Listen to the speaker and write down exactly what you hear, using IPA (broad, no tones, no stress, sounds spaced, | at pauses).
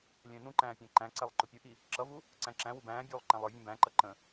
lʲ ɛ̃ː n ũ ǃ æ̃ː pʲ æ̃ ǃ æ̃ ǀ ɛ lˠ ǃ ʊ pʲ ʊ ʔ i | ǁ ʌ v u | ǀ æ̃ ǁ æ̃ w u b æ̃ː bʲ uː lˠ ǃ æ̃ lˠ ə˞ vʲ ɛ̃ b æ̃ ǃ ʌ ǃ ə̃